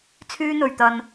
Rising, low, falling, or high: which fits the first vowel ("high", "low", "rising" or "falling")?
high